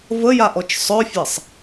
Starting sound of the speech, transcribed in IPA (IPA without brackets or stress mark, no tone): v